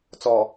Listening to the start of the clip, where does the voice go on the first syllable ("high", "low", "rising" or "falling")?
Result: low